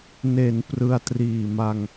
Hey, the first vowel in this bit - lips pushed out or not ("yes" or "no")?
no